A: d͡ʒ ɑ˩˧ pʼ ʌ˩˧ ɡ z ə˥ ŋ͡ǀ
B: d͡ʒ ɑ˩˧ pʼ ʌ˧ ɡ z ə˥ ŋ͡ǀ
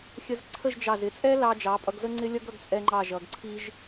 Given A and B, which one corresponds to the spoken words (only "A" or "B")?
B